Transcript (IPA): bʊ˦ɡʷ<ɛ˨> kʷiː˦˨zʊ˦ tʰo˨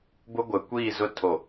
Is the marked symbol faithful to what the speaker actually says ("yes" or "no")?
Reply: yes